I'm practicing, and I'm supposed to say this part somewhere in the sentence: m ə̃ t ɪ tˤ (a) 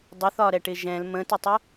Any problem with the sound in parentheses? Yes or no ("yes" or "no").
yes